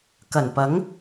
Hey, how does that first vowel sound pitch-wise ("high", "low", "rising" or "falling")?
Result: low